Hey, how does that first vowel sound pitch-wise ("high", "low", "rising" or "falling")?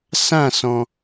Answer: falling